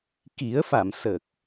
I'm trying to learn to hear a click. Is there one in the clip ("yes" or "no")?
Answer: no